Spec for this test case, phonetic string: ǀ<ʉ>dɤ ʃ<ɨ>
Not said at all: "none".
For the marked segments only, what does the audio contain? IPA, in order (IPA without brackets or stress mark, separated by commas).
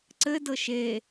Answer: ɘ, e